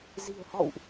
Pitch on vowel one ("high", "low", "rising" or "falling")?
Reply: low